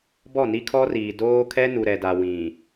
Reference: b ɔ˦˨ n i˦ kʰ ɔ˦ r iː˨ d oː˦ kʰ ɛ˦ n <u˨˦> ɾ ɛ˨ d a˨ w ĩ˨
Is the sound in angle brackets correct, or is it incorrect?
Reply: incorrect